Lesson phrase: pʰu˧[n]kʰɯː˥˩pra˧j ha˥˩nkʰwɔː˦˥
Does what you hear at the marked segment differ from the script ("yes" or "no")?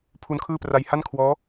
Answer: no